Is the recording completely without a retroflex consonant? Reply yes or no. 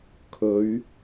yes